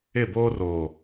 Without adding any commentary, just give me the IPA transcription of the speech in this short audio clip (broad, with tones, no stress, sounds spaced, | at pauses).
ɪ˦˨ b oː˦ r o˨